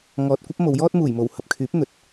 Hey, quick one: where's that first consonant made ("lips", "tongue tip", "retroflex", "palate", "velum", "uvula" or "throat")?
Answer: velum